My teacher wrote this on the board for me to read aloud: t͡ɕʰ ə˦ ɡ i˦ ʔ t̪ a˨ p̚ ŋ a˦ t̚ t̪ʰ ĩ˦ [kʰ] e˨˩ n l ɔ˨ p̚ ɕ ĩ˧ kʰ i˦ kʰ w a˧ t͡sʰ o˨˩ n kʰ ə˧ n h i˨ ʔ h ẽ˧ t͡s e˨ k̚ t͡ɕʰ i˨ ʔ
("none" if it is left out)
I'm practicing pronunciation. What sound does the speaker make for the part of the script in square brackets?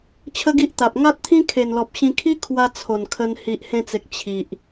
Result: kʰ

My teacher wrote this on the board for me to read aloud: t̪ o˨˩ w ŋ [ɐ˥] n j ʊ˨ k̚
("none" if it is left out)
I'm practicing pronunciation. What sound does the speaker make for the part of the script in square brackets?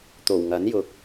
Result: ɐ˨˥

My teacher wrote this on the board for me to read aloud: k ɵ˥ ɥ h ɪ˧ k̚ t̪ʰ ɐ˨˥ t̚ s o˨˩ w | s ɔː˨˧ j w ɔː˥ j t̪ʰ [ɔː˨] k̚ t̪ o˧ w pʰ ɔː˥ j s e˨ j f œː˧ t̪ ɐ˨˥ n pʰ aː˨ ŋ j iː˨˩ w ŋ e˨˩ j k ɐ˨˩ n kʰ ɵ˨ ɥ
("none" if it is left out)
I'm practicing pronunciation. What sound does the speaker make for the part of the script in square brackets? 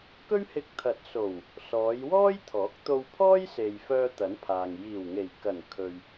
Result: ɔː˨˥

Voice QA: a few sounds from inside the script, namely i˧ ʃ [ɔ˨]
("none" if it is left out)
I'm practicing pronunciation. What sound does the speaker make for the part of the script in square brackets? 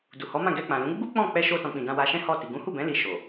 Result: o˨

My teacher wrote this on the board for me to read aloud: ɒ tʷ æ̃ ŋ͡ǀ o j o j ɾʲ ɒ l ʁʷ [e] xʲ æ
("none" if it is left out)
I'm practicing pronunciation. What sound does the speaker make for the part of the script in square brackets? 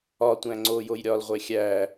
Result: e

